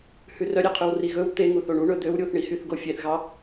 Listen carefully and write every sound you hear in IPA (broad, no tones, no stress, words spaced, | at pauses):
hʉrœɾʲeqʰʉw riɣɵw t̪e ŋuθoɳu ɳɵd̪øw ɾʲuθɳihyθ ɡofʲeθɣɑ